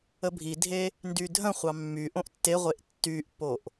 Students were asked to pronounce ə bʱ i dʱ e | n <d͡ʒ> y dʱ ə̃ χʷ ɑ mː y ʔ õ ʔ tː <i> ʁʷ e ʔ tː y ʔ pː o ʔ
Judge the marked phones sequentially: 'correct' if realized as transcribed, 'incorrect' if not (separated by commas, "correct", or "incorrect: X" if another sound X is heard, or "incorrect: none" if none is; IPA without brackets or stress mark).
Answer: incorrect: d, incorrect: e